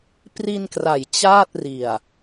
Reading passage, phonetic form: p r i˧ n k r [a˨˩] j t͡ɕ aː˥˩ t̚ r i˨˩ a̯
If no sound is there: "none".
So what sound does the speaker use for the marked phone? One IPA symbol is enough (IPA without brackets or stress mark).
a˩˦